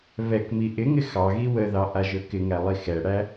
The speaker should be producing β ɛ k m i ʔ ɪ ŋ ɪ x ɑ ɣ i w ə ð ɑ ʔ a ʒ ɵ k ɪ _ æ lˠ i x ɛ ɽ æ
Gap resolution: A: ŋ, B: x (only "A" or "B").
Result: A